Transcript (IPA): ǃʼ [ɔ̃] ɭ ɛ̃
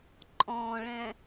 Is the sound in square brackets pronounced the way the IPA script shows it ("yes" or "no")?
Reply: yes